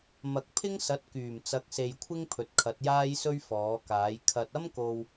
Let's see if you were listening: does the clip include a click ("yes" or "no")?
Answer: no